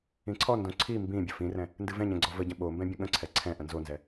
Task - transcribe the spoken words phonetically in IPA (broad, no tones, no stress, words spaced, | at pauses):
ĩǀʰɔndõ ǀʰi mbĩ bʲəfĩrɛ̃ | ndɨvɛ̃ɲɛ̃ ɡ͡ǀɔvəɟə̃ ɓombɛ̃ bʲə̃ɠə̃ǀʰɛ ǀʰɛ̃ ʔə̃nzonzɛ